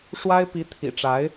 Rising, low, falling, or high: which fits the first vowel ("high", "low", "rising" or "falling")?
high